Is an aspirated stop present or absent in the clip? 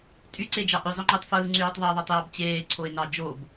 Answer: present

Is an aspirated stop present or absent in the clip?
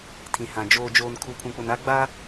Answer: present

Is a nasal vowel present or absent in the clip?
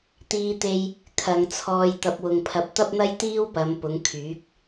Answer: absent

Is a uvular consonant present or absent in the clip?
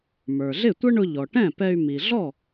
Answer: absent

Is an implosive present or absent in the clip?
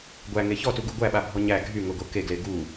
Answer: present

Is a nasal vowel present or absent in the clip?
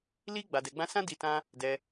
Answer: present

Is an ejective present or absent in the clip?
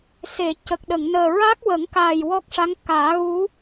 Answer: absent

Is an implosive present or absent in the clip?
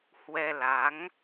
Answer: absent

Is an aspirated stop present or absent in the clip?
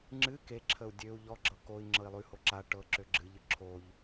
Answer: present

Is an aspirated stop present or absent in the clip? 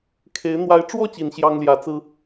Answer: present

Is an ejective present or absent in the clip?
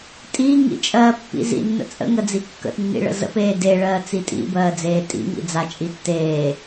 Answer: present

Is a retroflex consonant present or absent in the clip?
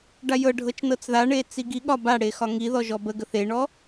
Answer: present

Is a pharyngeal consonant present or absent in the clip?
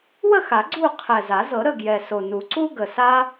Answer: absent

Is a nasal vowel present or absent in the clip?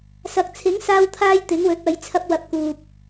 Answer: absent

